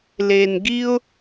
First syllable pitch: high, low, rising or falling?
low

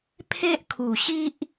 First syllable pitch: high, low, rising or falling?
high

